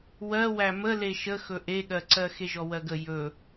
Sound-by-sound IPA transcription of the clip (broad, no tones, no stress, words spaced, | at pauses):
wɜwæ mə leʃəxɵ ʔeɠɜǀɜ xeʒɔwɜɡə jɵ